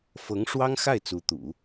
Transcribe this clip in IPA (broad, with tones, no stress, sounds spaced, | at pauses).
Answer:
f ɤ˧˥ ŋ ʂ w ɑ˥ ŋ x a˥˩ ɪ̯ t͡s u˧˥ t̪ ṵ˨˩˦